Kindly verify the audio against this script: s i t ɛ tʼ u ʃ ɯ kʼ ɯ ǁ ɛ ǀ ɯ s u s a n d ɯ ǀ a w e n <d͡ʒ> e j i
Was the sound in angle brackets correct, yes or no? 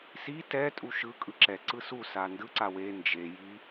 yes